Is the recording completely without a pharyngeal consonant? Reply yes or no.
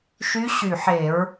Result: no